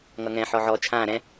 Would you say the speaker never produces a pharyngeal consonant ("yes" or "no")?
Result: no